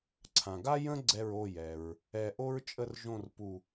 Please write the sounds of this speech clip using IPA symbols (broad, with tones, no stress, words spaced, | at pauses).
ǀʰã˩ɡa˥ jə̃˥ ɡ͡ǀɛ˧˩ɹ o˧˩jɛ˩ɹ | ɛ˧˩ʔo˥ɹ t͡ʃʼə˥˨rʒõ˥˨rpu˧˩